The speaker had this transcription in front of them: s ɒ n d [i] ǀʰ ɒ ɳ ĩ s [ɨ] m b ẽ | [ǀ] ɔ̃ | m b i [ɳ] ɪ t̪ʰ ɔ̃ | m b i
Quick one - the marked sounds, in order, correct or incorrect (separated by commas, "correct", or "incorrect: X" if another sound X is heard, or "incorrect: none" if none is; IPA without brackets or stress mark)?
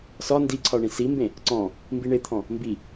correct, incorrect: i, correct, correct